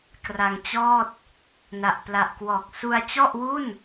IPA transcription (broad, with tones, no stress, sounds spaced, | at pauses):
k r a˧ ŋ t͡ɕ ɔː˥˩ t̚ | n a˨˩ ʔ p l a˨˩ ʔ k w ɔː˨˩ k̚ s u˧ a̯ t͡ɕ ɔ˥˩ ʔ w u˥˩ n